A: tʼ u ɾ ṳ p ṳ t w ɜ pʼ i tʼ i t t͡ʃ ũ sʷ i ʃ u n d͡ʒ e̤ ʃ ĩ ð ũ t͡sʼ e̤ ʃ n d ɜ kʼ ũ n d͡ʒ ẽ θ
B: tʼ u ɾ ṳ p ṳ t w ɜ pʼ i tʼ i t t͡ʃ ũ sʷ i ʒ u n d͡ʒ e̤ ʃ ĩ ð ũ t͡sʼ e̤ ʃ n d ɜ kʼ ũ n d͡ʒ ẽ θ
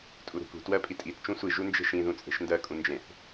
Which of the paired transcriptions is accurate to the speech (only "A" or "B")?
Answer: B